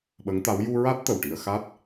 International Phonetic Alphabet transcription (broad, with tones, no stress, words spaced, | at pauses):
ɓə˧˥ŋt̪a˧˥w ju˧ɹa˦˥t̚ t̪ə˨˩wʈi˧ə̯ xa˦˥t̚